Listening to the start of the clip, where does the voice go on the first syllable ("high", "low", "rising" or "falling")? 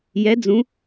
rising